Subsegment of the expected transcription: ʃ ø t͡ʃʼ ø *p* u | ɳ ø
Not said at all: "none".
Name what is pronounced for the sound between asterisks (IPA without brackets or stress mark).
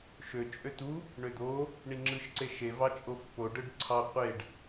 t̪